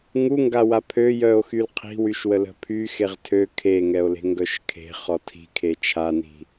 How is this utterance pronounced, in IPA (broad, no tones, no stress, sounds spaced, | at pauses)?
ŋ u ŋ ɡ a w a pʰ ø j œ o̯ x y l qʰ i̤ w y ʃ w ə l ə̤ pʰ y x e ʁ tʰ ø kʰ e ŋ ɛ o̯ l e̤ ŋ ɡ œ ʃ kʰ e̤ χ ɔ tʰ i̤ kʰ e t͡ʃʰ a n i̤